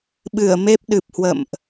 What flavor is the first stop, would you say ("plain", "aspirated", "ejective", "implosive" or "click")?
implosive